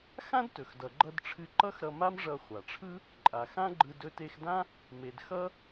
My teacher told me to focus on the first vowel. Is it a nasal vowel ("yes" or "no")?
yes